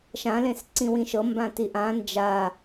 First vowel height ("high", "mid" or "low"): low